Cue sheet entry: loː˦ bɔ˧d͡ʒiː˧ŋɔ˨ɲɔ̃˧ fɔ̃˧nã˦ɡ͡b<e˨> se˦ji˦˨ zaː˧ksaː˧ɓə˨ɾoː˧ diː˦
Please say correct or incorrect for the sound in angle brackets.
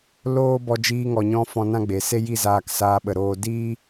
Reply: correct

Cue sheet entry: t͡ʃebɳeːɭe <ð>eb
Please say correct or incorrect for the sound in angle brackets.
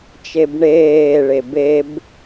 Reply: incorrect: b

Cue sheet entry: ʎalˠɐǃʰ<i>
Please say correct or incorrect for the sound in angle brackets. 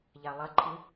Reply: incorrect: ɨ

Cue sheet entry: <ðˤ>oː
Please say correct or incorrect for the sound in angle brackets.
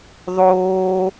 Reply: correct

